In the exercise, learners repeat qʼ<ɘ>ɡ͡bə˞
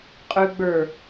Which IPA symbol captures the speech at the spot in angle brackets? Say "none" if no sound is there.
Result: ʉ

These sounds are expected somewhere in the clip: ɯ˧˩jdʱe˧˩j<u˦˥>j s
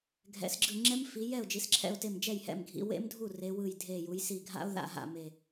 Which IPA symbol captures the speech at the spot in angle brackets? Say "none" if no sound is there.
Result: u˩˧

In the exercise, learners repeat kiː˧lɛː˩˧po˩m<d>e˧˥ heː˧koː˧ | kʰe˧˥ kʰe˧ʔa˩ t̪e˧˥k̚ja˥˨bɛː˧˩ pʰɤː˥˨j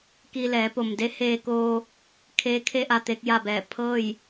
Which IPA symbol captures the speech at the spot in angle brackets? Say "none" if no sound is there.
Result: d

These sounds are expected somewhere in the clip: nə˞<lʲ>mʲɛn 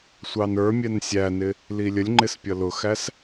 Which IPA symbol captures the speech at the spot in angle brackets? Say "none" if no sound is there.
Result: none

